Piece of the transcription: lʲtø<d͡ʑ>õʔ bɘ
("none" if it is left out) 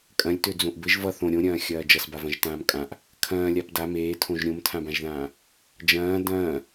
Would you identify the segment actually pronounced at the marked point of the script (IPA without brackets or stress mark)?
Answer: d͡z